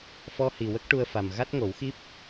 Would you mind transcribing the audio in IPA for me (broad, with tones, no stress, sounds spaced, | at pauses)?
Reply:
f ɔ˧ h i˨˩ w ə˦˥ k̚ ʈ u˧ ə̯ f a˨˩ m ɣ a˦˥ t̚ ŋ o˨˩˦ w x i˦˥ p̚